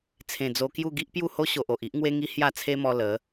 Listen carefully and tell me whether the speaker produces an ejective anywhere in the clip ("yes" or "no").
no